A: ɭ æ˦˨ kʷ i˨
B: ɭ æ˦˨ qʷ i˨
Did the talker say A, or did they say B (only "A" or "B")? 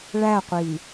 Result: B